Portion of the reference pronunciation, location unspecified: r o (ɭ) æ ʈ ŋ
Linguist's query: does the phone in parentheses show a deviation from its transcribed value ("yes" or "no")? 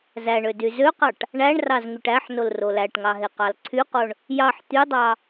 yes